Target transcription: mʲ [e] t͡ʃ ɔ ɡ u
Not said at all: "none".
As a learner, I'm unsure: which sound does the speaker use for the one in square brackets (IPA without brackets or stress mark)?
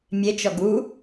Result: e